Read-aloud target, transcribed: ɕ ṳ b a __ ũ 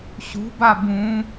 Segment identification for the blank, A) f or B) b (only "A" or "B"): B